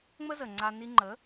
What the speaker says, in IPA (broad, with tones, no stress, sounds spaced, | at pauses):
ŋ͡m ə˦ z ə˨ ŋ͡ǀ a˧ n i˧ ŋ͡ǃ ə˨˦